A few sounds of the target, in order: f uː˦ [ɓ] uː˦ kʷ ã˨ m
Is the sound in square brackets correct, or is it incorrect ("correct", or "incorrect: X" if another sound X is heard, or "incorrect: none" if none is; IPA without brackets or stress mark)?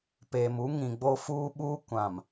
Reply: correct